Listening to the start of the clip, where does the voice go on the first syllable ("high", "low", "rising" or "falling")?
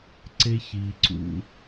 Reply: high